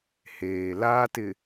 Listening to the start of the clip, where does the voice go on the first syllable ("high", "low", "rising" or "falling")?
low